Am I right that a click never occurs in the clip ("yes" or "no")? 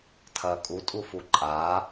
no